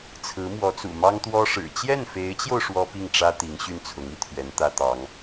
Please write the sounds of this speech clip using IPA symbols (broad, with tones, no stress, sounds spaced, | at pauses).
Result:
t͡sʰ ɹ̩˧˥ m w ɔ˧˥ t͡s ṵ˨˩ m ɑ˥ ŋ t̪ w ɔ˥ ʂ ɻ̩˨˩ t͡ɕ j ɛ˥˩ n f e˧˥ ɪ̯ t͡ɕ j o˧ ʊ̯ ʂ w ɔ˥ p i˥˩ ŋ ʈ͡ʂ ä˥ t̪ i˧˥ ŋ ɕ y˥˩ n t͡sʰ ʊ˧˥ ŋ i˧˥ t̪ʰ ɥ ɛ˧˥ n t̪ ä˥ t̪ ɑ˧˥ ŋ